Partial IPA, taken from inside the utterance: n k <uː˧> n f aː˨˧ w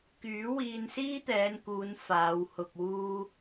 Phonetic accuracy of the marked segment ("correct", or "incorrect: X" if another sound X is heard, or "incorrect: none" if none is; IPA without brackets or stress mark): incorrect: uː˨˧